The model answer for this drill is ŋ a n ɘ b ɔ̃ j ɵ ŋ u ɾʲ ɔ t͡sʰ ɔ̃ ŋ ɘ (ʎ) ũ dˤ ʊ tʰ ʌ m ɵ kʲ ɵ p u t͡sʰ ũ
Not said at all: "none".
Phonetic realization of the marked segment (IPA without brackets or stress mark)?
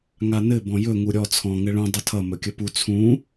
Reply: ɭ